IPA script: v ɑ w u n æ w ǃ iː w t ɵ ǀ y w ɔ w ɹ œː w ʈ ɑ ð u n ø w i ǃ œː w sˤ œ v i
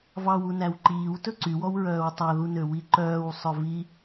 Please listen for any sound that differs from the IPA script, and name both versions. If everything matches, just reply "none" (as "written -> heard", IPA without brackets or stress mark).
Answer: ʈ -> tˤ